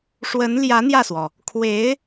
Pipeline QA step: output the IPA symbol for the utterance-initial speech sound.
ʂ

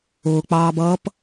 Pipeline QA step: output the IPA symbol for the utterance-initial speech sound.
ʊː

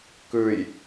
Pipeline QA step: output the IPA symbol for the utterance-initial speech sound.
k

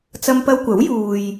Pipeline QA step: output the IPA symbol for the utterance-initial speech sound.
t͡s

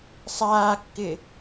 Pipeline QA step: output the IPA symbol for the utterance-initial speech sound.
sˤ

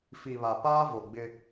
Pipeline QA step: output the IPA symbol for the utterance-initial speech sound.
f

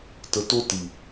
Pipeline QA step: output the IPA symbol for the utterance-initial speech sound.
t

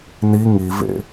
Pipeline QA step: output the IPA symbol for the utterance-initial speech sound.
n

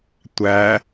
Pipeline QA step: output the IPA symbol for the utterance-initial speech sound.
tʷ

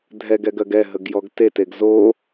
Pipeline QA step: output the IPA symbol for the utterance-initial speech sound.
dʱ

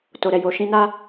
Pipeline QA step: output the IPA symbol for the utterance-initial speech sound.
t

